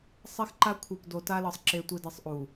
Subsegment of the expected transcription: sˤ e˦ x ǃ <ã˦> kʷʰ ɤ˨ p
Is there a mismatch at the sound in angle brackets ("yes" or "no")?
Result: yes